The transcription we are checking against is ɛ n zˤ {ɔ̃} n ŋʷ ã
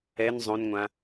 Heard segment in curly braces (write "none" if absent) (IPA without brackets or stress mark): õ